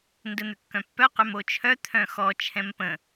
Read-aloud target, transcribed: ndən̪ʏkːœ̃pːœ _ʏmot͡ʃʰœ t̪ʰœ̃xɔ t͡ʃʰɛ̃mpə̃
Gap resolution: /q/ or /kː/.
q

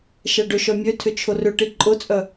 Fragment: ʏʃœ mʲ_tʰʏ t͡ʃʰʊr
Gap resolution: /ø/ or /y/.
ø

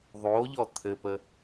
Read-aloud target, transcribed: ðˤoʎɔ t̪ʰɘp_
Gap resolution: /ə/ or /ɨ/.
ə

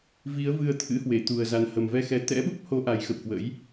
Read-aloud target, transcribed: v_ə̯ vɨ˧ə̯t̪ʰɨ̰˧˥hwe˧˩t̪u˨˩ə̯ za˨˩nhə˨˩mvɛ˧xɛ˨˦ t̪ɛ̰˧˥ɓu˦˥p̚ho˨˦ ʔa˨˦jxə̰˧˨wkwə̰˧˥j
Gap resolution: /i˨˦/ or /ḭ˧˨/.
i˨˦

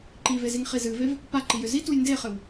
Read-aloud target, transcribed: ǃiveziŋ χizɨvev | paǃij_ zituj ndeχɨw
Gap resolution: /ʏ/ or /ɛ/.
ʏ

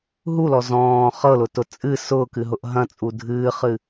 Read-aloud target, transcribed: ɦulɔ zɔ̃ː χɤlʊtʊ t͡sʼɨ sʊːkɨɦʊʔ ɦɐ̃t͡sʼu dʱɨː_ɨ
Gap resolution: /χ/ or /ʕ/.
χ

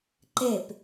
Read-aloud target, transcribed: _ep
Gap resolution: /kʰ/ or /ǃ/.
ǃ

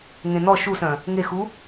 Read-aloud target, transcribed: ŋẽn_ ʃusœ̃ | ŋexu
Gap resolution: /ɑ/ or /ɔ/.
ɔ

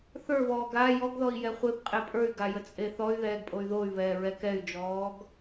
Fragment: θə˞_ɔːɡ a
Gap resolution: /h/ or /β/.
β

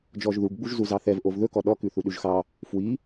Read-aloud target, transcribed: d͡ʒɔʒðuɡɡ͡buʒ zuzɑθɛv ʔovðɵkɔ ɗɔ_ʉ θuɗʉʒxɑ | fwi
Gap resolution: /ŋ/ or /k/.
k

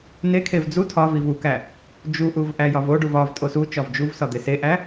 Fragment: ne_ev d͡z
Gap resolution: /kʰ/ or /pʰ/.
kʰ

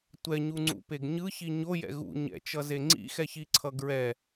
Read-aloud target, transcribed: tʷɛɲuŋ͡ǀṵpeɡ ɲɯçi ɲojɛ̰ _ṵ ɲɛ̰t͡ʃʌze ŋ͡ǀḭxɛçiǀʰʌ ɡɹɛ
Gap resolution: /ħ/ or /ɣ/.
ɣ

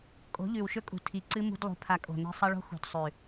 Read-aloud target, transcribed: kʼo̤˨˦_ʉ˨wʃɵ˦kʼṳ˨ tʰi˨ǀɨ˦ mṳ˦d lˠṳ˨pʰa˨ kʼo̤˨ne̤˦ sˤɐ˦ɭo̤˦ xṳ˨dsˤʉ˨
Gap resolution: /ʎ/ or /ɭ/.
ʎ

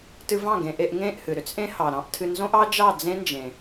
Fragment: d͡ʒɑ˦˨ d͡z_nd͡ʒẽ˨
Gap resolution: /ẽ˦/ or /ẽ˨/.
ẽ˦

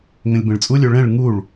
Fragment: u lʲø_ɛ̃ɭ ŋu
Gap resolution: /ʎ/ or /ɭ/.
ɭ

